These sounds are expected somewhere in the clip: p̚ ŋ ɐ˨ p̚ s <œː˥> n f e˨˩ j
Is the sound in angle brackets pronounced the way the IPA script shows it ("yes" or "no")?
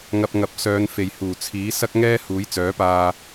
no